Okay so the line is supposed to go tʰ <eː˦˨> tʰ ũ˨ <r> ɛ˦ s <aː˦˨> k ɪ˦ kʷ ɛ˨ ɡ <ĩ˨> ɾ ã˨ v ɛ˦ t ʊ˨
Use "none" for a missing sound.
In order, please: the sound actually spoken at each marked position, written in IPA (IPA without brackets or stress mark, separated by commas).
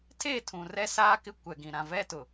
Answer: eː˦˨, r, aː˦, ĩ˨